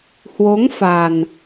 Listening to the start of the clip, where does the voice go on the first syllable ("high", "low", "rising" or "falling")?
rising